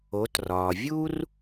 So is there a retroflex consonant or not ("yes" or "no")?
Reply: no